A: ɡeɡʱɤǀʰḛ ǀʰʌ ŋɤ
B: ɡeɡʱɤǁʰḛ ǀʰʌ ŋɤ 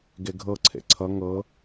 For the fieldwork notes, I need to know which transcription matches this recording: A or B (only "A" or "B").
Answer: A